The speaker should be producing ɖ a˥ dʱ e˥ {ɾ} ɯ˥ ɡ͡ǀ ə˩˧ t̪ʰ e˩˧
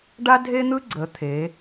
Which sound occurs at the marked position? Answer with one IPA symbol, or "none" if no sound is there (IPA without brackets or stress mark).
n̪